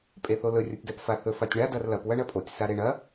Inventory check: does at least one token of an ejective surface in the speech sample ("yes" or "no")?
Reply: yes